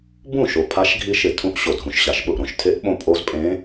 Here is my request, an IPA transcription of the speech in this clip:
b ũ˥˩ ʃ o˨˩ pʰ a˧˥ ʃ ɡʱ i˧˥ ʃ ɪ˨˩ tʰ ũ˧˥ ʔ ɕ o˨˩ dʱ ũ˨˩ ʃ ɕ a˨˩ ʃ ɓ ʊ˥˩ ʔ ɾ õ˨˩ ʃ tʰ e˧˥ ʔ ɓ õ˧˥ pʼ o˧˥ z pʼ ẽ˧˥

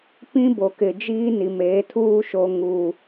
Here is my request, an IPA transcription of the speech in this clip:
p ĩ˦ b o˨ k ɪ˨ d͡ʒ iː˦ n i˨ m eː˨˦ tʰ uː˦ ʃ o˨ ŋ uː˨

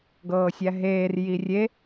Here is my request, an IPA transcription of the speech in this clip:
ɡ ɤː sʲ æ ɦ eː r j i rʲ e

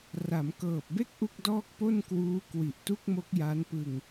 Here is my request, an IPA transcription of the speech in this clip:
r a˩˦ m k ɤː˨˩ p̚ b e˥˩ k̚ ʔ u˥˩ k̚ d ɔː˥˩ k̚ p o˥˩ n k w uː˦˥ k w i˨˩ ʔ t u˥˩ k̚ m o˦˥ k̚ j a˦˥ n p ɯ˧ ŋ

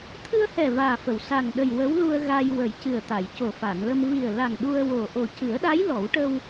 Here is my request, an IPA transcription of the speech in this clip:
t̪ʰ ɨ˧ ə̯ h ɛ˨˩ v aː˨˩ f ə˨˩˨ w s a˨˩ ŋ ɗ ə˨˩ j w ə˧˥ w l u˧ ə̯ ɣ a˧ j w ə˨˩˦ j c ɨ˨˩ ə̯ t̪ a˨˩˨ j c o˨˩ f a˨˩˨ n l ə˧ m v i˨˩ ə̯ l a˨˩ ŋ ɗ u˧ ə̯ w o˨˩ ʔ o˨˩ c ɨ˨˩˦ ə̯ ɗ a˧˥ j l ɔ˨˩˦ w ʈ ə˧ w

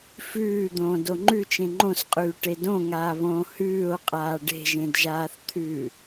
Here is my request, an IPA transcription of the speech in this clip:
f ʉː d̪ õː d o ŋ͡ǃ ʉ t͡ʃ ẽ ŋ͡ǃ õ s qʼ ʉː ʈ e d õ ŋ aː β õː h ʉː o̯ qʼ aː ɖ e̤ ʒ ẽ d ʒ aː θ t̪ʰ ʉː

